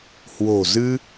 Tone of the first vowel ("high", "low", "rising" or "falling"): low